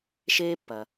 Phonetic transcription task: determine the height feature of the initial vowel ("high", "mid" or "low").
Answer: mid